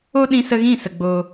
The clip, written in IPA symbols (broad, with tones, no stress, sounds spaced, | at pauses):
o˦ ɗ ĩ˧ s ə˧ ɣ ĩ˦˨ s ə˨ ɡ͡b o˧